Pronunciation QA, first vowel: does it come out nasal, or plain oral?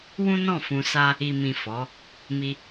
nasal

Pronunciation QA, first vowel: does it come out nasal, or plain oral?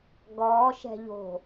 oral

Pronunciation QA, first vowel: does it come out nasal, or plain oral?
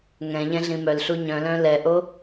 nasal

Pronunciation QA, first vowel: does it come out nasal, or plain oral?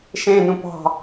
nasal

